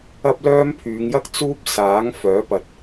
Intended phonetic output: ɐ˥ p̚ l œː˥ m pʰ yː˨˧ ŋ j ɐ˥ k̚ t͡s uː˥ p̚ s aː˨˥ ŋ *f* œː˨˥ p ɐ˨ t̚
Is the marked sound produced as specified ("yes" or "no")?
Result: yes